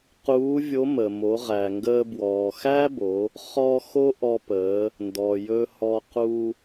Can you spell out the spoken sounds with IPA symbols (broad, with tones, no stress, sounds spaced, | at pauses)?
q uː˧˥ vʲ o˧˥ m ə˩ m o˩˧ ʁ æ˩ ŋ ɡ əː˧ b w ɔː˩ x æ˥ b o˩˧ | χ ɔ˧ x o˥ ʔ ɔ˧ p əː˩˧ | n d ɔ˩ j ɵ˧ h ɔ˧ q u˧